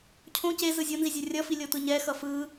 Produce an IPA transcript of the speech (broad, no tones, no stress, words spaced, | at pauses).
cʰõ ce zɯzʲonzi zʲɛrʲʌfi lʲot̪ɯɲɛxʌ fɯ